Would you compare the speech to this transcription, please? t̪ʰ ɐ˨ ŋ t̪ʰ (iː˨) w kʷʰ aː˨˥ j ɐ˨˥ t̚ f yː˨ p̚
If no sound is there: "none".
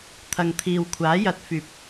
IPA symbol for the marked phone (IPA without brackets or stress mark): iː˨